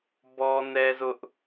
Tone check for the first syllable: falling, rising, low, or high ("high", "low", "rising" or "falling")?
high